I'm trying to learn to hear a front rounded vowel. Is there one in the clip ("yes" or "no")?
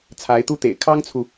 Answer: no